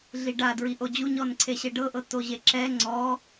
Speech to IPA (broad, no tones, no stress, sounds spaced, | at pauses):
ɮ i ɖ a d ɹ i ʔ o d͡ʑ u ɲ ɔ n ǀʰ e ɕ e ɖ ɤ ʔ ɤ t o ʑ e ǁ ɛ ŋ͡ǀ ɔ